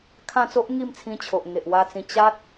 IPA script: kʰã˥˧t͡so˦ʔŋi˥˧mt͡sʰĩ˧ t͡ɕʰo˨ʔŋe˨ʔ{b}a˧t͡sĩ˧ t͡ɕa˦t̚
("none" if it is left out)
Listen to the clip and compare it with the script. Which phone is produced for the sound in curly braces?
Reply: w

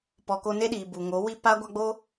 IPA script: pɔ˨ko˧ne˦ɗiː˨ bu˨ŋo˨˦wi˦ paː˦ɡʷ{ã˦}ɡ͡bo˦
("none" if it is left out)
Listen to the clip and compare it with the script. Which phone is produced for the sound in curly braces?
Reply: a˦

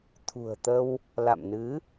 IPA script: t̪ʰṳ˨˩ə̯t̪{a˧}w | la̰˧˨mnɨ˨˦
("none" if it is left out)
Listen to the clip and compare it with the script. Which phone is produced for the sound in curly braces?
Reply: ə˧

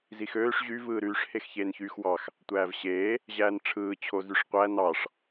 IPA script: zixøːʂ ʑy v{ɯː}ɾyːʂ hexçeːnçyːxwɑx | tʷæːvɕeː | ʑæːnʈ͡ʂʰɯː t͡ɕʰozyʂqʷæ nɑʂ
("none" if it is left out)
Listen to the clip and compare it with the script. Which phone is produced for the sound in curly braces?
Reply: ɯː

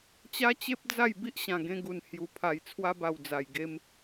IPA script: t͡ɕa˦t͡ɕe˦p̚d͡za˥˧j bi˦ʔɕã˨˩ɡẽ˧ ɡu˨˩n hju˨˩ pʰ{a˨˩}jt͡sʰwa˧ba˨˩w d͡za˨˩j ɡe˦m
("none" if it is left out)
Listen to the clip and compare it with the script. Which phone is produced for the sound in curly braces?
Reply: a˨˩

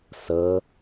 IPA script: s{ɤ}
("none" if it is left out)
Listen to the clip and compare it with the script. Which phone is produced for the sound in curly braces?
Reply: ɤ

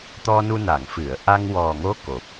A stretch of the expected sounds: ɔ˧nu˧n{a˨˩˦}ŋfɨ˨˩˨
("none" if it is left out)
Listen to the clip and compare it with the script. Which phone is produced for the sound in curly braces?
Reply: a˨˩˨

